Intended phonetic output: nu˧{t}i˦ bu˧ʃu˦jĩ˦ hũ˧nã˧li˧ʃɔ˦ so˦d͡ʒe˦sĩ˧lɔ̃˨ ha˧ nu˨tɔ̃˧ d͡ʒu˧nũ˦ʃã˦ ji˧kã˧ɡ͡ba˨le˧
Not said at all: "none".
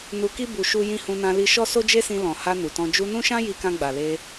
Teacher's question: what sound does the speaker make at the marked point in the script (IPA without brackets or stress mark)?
k